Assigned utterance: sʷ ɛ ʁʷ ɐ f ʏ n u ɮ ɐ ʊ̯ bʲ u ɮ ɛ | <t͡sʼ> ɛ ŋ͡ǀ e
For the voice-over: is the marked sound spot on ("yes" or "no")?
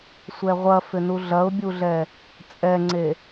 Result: yes